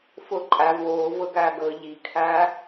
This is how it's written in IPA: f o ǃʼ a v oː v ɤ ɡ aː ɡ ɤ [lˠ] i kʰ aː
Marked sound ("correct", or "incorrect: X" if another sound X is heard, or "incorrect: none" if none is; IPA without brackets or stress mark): incorrect: ʎ